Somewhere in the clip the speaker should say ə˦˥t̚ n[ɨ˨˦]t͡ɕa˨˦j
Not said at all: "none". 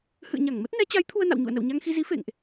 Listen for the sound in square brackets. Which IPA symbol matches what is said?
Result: ɛ˨˦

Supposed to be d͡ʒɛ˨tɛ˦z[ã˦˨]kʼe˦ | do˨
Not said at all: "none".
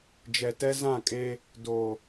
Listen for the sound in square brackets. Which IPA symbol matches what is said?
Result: ã˦˨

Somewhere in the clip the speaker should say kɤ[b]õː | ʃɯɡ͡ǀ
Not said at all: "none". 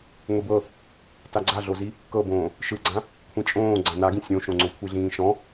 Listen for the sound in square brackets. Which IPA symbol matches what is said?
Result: b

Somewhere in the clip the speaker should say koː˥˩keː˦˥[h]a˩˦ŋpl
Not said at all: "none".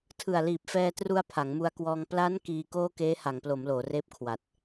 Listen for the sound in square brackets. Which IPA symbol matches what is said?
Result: h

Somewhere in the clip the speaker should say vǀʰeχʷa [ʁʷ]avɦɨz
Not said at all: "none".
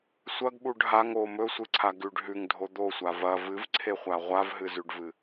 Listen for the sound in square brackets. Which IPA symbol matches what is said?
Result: ʁʷ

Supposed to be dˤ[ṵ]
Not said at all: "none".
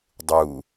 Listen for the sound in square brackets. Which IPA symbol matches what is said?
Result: u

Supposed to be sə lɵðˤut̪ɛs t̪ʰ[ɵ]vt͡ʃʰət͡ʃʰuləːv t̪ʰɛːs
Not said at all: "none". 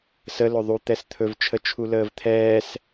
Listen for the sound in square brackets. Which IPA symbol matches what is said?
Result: ɵ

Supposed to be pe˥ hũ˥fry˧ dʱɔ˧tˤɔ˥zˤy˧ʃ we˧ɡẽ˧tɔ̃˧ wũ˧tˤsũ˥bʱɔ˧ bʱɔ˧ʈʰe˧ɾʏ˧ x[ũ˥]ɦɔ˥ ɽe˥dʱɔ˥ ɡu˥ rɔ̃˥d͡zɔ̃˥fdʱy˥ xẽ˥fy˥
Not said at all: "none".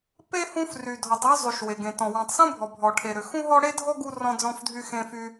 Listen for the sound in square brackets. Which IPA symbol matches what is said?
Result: ũ˥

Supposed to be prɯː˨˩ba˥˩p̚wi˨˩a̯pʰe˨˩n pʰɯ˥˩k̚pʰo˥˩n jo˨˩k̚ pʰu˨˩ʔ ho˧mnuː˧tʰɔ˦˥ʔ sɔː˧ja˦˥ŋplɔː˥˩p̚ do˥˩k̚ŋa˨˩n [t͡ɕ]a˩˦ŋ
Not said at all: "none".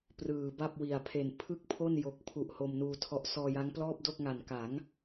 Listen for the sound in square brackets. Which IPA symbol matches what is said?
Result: k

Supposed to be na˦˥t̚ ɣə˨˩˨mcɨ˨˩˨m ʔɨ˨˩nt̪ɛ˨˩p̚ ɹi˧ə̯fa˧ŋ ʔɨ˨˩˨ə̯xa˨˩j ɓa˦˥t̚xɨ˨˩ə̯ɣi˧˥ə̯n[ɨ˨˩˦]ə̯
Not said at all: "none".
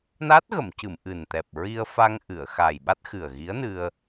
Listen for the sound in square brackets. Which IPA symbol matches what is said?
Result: ɨ˧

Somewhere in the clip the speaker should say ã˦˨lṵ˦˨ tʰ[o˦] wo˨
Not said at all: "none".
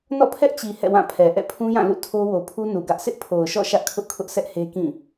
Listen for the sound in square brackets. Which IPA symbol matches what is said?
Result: o˦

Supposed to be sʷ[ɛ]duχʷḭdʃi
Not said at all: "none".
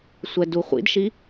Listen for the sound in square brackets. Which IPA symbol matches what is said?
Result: ɛ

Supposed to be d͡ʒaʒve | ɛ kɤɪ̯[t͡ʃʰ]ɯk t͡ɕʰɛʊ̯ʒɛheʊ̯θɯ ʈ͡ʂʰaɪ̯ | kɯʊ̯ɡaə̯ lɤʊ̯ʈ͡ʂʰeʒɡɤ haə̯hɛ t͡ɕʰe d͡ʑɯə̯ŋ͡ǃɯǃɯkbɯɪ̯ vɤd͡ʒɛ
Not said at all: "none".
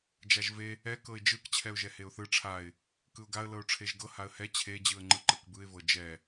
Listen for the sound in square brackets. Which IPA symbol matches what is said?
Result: d͡ʒ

